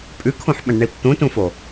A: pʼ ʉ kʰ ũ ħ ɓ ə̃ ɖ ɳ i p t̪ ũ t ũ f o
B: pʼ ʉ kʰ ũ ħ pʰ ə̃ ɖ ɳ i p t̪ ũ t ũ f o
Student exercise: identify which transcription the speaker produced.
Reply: A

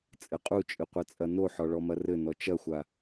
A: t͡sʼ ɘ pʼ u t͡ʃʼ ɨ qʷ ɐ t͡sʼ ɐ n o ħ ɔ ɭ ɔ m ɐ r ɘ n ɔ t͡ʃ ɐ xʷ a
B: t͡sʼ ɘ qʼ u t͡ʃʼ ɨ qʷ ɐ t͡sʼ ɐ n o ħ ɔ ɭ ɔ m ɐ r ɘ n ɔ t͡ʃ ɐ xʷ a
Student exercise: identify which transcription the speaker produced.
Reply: B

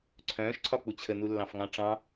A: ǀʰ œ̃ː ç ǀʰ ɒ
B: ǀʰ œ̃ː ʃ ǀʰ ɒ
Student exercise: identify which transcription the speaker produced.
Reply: B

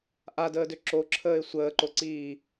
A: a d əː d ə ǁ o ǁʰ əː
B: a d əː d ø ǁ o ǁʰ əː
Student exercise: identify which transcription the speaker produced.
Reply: B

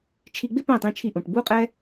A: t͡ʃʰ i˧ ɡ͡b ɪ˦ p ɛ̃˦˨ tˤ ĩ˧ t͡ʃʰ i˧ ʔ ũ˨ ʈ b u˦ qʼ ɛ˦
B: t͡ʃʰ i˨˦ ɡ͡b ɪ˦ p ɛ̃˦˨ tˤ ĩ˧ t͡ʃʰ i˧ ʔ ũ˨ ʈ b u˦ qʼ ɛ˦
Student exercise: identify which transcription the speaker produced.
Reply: A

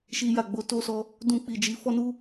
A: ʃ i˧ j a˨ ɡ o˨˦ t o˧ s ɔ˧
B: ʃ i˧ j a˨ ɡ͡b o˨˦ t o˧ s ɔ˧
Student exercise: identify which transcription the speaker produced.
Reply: B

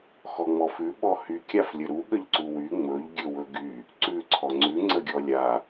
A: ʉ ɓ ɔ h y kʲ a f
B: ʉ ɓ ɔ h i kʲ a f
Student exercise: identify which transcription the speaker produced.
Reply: A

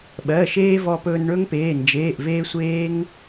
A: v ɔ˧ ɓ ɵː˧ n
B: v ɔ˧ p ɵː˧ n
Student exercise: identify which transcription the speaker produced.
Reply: B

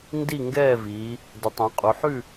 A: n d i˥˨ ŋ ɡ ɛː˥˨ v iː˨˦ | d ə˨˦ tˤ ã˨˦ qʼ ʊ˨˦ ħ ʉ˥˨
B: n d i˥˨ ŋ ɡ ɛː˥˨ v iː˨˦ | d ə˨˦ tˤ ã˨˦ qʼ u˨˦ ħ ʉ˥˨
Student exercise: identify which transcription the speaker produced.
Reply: B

